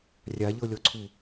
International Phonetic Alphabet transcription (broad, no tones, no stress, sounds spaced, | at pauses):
rʲ a ʎ ɤ lʲ ɔ ǀʰ u